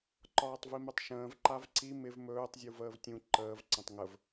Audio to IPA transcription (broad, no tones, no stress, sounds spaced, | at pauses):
ǃ ɒː tˤ v i m ɵ tˤ ʃ ə̃ː v ǃ a v ǀ i m ɪ v m ɵː tˤ zʲ u v əː v tʲ ũ ǃ əː v ǀ ə̃ tˤ ŋ ə v